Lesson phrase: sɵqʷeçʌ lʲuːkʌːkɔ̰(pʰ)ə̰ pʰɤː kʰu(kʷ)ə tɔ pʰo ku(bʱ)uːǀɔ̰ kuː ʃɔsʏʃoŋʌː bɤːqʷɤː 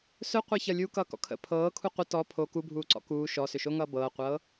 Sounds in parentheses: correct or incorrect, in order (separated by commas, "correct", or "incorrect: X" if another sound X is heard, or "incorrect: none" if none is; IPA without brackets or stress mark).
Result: incorrect: kʰ, incorrect: qʷ, correct